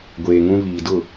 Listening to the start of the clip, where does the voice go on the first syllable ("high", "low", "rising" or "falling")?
low